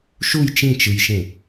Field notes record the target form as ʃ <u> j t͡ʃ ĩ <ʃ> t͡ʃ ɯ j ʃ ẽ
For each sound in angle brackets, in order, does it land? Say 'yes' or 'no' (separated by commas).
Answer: yes, no